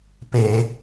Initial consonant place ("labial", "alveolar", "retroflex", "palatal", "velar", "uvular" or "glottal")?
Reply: labial